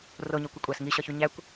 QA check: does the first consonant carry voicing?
yes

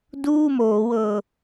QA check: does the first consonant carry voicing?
yes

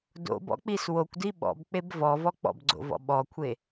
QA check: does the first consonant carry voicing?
yes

